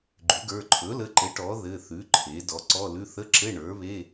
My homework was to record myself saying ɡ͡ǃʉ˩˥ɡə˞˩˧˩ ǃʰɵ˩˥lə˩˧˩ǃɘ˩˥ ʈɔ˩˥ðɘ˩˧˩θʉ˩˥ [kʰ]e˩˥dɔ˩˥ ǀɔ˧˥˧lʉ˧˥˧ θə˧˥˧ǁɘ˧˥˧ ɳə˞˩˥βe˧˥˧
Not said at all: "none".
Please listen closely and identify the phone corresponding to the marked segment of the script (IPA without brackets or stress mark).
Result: ǃʰ